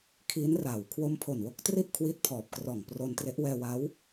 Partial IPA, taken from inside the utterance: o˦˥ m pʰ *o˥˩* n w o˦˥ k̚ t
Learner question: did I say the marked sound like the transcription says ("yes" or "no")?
no